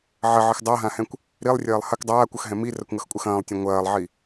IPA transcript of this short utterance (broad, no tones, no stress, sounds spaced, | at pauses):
ʕ ɐ ʕ ɨ x dˤ a ɦ ã h ɛ̃ kʷ | ɾ i lˠ rʲ ɐː lˠ h ɐ k dˤ aː kʷ ʌ x ɦ ɛ̃ m i r ɐ kʷ ŋ ʌ x kʷʼ ɐ x ɐ̃ː lˠ tʲ ɛ̃ ŋʷ ɐː lˠ ʕ i